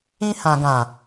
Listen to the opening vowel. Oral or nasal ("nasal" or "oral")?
nasal